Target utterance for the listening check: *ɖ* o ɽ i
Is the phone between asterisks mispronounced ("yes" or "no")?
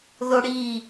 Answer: yes